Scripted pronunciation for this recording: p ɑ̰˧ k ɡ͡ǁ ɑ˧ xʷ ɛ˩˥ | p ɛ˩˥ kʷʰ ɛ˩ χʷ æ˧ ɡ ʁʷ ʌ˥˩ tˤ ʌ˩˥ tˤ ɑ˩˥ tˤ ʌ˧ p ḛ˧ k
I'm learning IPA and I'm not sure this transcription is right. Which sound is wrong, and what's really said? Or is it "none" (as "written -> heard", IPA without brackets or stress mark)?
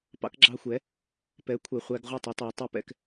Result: ḛ˧ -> ɛ̰˧